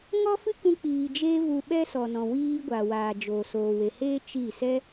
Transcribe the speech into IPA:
ŋ ɔ˦ f ɨ˦ k ũ˦ k͡p iː˧ d͡ʒ e˦ v u˧ ɓ ɛ˦ s ɔ˨ n ɔ̃˨ w iː˧ ɡʷ aː˨ w aː˨ d͡ʒ o˨ s oː˨ w e˨ h eː˦ t͡ʃ i˦˨ s ɛ˦

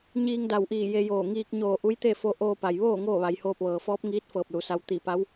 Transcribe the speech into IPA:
ɲ iː˧ ŋ d a˧˩ w ʔ iː˧˩ j e˧ j oː˧˩ ŋ iː˧ k̚ ɲ oː˧˩ ʔ u˧˥ j t̪ e˥˨ f o˧ ʔ oː˧ p a˩ j ʋ oː˥˨ ŋ oː˥˨ ʋ a˩˧ j h oː˧ p̚ ʋ ɤː˩ f ɔː˧˥ p̚ ŋ iː˧˥ t̚ f ɤː˧˩ p̚ l u˩˧ s a˧ w t̪ i˧˩ p a˧˥ w

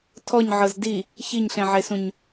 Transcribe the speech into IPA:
tʰ ɔ ɲ ʕ ɤ z d i | ç i ɲ ɬ ẽ ʕ e s ũ ɲ

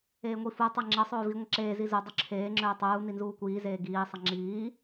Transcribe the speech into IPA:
eː ŋʷ i f u tˤ e ŋ͡ǁ ə sˤ ɵː v i ŋʷ ə ǁ eː z i z u dˤ ɵ ǁʰ eː ŋ͡ǁ ɵː tˤ uː n i n z uː kʷ iː z eː ɡ iː sˤ ʌ ŋ͡ǁ iː

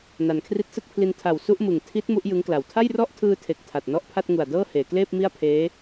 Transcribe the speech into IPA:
n a˩˦ n kʰ r i˦˥ t̚ s ɯ˥˩ k̚ pʰ l i˧ n tʰ a˨˩ w s u˥˩ ʔ m ɯ˨˩ ŋ tʰ i˦˥ t̚ m u˦˥ ʔ j ɯ˦˥ ŋ k l a˨˩ w tʰ a˥˩ j r ɔ˥˩ ʔ tʰ ɯː˧ tʰ e˨˩ k̚ tʰ a˨˩ t̚ n ɔ˥˩ ʔ pʰ a˥˩ t̚ ŋ u˨˩ a̯ d ɤː˥˩ h eː˩˦ k l eː˥˩ p̚ m i˥˩ a̯ pʰ eː˦˥

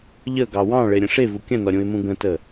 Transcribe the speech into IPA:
ʎ ə ɡ ɑ w ɑ̃ ɭ e ɾʲ ə̃ ʂ e v u kʲ ə̃ n ɔ ɾʲ ũ ɪ̯ m ũ ɡ ə̃ t ə

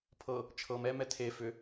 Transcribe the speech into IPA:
pʰ ɤ | t͡ʃʰ ɤ m ɛ m ɛ tʰ e f ʏ

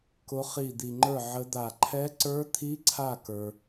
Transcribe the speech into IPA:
k ʊ˦˥ χ i˦˨ d̪ i˨ ŋ͡ǃ ə˞˦˨ ʕ ə˦˥ d̪ a˦˨ ǃʰ ɛ˦˥ ǀ ə˞˦˥ t̪ʰ i˦˥ ǀʰ a˦˨ k ə˞˨

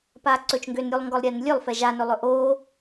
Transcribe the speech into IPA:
p aː ǀ ɵ t͡ʃ ŋ ɡ ø n ɾʲ u lˠ ŋ ɡ ɔ lˠ ɾʲ ɛː n lʲ ø lˠ f ɛ ʒ a n ɵ lˠ ɵ ʔ oː

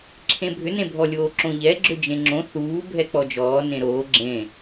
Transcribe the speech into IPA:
ǁʰ ẽ bʱ ʏ n ẽ bʱ ɔ lʲ oː ǁ õ ʎ ɛ ɡ͡ǁ ʏ d͡ʒ ẽ ŋ͡ǁ õ θ uː bʱ ɛ k͡p ɔ d͡ʒ ɔː n ẽ ɾ oː ɡ͡ǁ ẽ

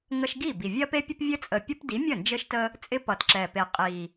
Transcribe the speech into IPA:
ŋ ə˦ ʃ ɡ i˥˩ b i˨˩ vʲ ɜ˦ p e˦ pʲ ə˦ p vʲ ɘ˦ t͡sʼ ə˨˩ pʲ ə˦ p d i˨˥ mʲ ə˥˩ n d͡ʒ ɘ˦ ʃ t ə˦ | t͡sʼ ɪ˦ p ʌ˨˩ t ǁ ɛ˨˩ p e˨˩ qʼ i˨˩

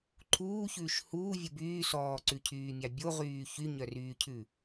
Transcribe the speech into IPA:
ǃʰ uː ç ʉː ʃ h uː vʲ u b yː s ɔː ǀ ʉ cʰ yː mʲ ɑ bʲ o ʁ yː ç y ɲ œ r yː cʰ ʉ

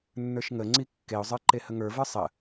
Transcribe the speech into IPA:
nː ə˞ ʃ ŋ ə ŋ͡ǀ i kː e ʊ̯ zˤ ə˞ ǃ e h ə ŋ ə˞ v ə˞ sˤ ə

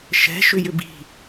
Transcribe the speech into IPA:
ʃ ɛ̤ ʃ ʏ j ʏ b i̤

